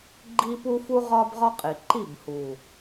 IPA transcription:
ɡ͡ǃi˦pu˦fu˦ ʁɒ˦bʁɒ˦qʼi˨ ǃi˦˨bhu˨

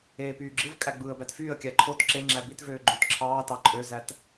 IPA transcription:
eːpyːɡ͡ǁɯvkʼæ ɡ͡bɯːə̯bætfyːə̯kʲæ ǃʰot ǁeŋ͡ǁæ bitvøː ɡ͡ǃøtǁʰɑːtɑ ǃʼøzæt

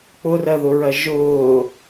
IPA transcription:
k͡pʊrɜðʊɹɜ ʒʊː

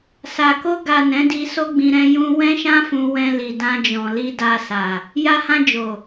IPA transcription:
sa˨ko˧ ɡa˨ nɛ̃˨˦di˧so˦ɡ͡bĩ˧ ɾɛ̃˧jũ˧ wɛ̃˦ʃã˦fũ˧ wɛ̃˧li˨ dã˧d͡ʒɔ̃˨ li˧da˧ sa˨ | ja˧hã˧ d͡ʒo˨

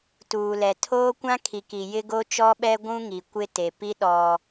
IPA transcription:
tuː˨lɛ˨tʰoː˦kʷã˦ kʰi˨ki˨ jɪ˦ɡo˦t͡ʃɔ˦ɓɛ˦ ɡʷũ˦ŋi˨ kʷɪ˦ te˨pi˦ ɗɔ˦

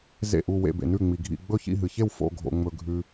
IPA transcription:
zḛ˥˩ʔu˥˩ wḛ˥˩bḛ˨nʉ˥˩ŋ͡mi˨ ɡʱḭ˥˩ ɡ͡bɵ˥˩çḭ˥˩ɦɨ˨çe˥˩w fo̰˥˩ɡʱo̰˨ ŋ͡mɵ˨ɡʱʉ˨

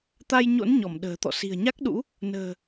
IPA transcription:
t̪a˧jɲo̰˧˥n ɲɔ˧˩mɗə̤ː˨˩t̪ɔ̰˧˨ si̤˨˩ə̯ɲa˦˥k̚ɗṵ˧˥ | nə̤ː˨˩

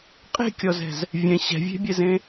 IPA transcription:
qʼe̤kʲɔzɛ̤z | vʲɛ̃ ɕɛ̤vʲe̤bʲɛzẽ

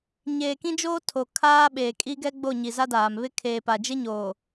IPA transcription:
ɲeː˨kĩ˦d͡ʒoː˦tʰo˨ kʰaː˦ɓeː˨ kʼi˦ɡɛ˦ɡ͡bo˦˨ ɲi˨za˦daː˨m βɪ˦ kʰeː˨pa˨d͡ʒɪ˦ɲoː˨

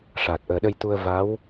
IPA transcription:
ʂaː˨˩t̚ʔəː˨˩ɗə˧jt̪u˧ə̯ va˧˥w

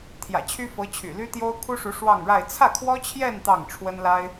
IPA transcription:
t̪ʰjä̰˨˩t͡ɕʰy˥fɤ˧˥t͡ɕʰy̰˨˩ ly˥t̪jo˥ʊ̯kʰu˥ʂu˧˥ ʂwɑ˥˧ŋɻa˥˧ɪ̯ t͡sʰä˥˩kʰwɔ˥t͡ɕʰjɛ˥˧n t̪ɑ˥˩ŋʈ͡ʂʰwə˥nla˥ɪ̯

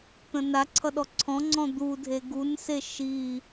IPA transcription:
t̪ə̃naǀʰʌ ɗɔǀʰɔ̃ŋ͡ǀɔ̃ d̪udʱe ɡunse ʃi

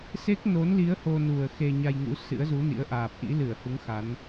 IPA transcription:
se˦˥k̚no˨˦nli˨˦ə̯ ho˧nu˨˩ə̯ xe˧ɲa˧jŋṵ˧˥ sɨ̰˧˥ə̯zu˨˦nḭ˧˥ə̯ʔaː˨˩p̚ ʔḭ˧˥lɨ˧˩ə̯hu˨˦ŋ xa˨˦n

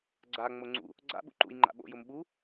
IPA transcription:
ɡ͡ǀa ŋ͡moŋ͡ǀṵ | ɡ͡ǀa̰ ɓṵǃṵj ŋ͡ǃa̰ɓo̰ jʊmɓu

